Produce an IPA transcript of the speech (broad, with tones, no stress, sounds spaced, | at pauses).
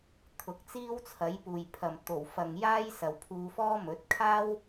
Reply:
t̪ʰ ʊ˨ k̚ t͡s iː˥ w t͡sʰ ɐ˨˥ j p uː˨ j pʰ ɐ˨ m t̪ o˨˩ w f ɐ˨ ŋ j aː˥ j s ɐ˨ w pʰ uː˧ f ɔː˥ m ɵ˨˥ t̚ kʰ aː˥ w